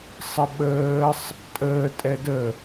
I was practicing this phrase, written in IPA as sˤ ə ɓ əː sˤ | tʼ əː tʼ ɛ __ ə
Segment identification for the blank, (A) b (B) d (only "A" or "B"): B